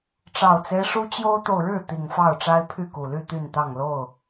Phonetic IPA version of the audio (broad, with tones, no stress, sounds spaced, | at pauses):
ʈ͡ʂ ɑ˨˩ ʊ̯ t͡s e˦ ɪ̯ ʂ u˦ t͡ɕ j o˦ ʊ̯ t̪ o˨ ʊ̯ ɻ ɻ̩˥˨ t̪ i˨˩ ŋ f ɑ˥˨ ʊ̯ ʈ͡ʂ a˦ ɪ̯ pʰ y˥˨ k u˨˩ l y˥˨ t̪ y˥˨ n t̪ ɑ˥˨ ŋ l o˥˨ ʊ̯